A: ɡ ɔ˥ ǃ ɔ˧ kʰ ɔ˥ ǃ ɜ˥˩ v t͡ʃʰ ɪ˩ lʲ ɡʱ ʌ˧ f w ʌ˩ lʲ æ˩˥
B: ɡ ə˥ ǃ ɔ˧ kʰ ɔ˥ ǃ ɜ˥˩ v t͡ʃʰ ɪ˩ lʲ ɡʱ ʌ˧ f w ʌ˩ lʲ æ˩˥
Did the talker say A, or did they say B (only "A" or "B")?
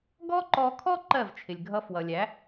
A